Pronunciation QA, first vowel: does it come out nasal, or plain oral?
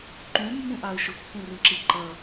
nasal